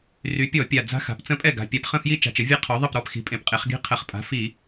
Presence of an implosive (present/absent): absent